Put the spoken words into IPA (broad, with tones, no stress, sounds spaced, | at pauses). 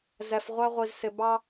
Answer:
z ɛ˧ f ʁʷ æ˥ ʁʷ i˧ z s ɪ˧ b ɑ˥